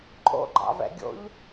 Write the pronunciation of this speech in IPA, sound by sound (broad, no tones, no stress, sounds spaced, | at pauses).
ǃʼ o̰ ɡ͡ǃ ɑ̰ v ɛ̰ ɡʲ o̰ ʎ